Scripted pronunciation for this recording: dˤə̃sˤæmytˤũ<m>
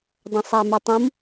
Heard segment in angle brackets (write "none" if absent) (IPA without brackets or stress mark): m